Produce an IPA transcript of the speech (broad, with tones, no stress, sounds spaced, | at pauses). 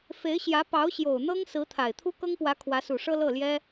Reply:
f e˧˥ ɪ̯ ɕ j ä˧˥ p ɑ˧˥ ʊ̯ ɕ j o˨˩ ʊ̯ n̪ ɤ˥ ŋ s ɹ̩˧˥ t̪ʰ a˨˩ ɪ̯ t̪ʰ u˥ k ɤ˥ ŋ p w ä˧˥ kʰ w ä˧˥ s u˨˩ ʂ ɤ˥ l ɤ˥˩ l j ɛ˥